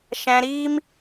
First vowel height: low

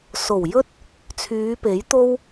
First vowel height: mid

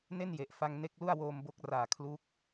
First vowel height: mid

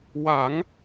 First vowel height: low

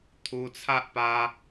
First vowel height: high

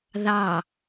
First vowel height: low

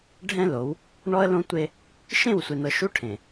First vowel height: mid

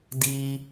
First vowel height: high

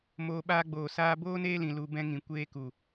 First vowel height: mid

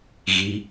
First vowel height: high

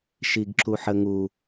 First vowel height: high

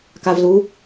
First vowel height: low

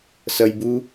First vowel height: mid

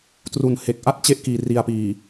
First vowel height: high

